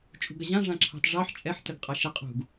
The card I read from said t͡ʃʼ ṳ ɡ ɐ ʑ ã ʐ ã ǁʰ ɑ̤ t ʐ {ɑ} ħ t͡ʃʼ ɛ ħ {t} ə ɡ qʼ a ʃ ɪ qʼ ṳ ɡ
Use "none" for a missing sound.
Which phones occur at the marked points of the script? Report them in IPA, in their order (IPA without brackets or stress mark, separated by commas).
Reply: ɑ, t